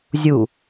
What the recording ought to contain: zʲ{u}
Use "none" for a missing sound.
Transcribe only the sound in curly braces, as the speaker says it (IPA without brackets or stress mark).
u